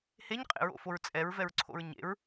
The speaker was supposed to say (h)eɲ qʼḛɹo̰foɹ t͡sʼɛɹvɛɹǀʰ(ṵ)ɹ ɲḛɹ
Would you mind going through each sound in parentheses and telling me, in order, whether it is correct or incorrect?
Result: correct, incorrect: o̰

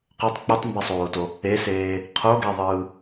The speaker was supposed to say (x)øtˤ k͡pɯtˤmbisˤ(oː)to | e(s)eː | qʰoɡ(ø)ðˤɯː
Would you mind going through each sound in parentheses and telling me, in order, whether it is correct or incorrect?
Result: incorrect: q, correct, correct, incorrect: e

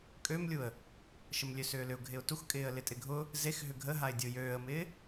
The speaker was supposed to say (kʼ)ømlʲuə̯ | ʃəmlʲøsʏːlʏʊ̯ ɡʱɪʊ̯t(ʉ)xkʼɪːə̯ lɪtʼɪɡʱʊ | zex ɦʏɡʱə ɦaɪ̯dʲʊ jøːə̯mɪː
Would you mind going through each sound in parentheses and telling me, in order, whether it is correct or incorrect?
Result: correct, incorrect: u

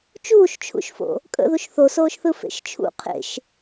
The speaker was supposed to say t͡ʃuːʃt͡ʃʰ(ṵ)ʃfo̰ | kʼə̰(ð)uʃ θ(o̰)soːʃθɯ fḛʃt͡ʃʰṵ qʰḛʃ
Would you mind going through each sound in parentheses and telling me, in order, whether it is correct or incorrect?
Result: correct, correct, incorrect: o

